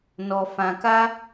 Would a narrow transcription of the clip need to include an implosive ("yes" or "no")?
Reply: no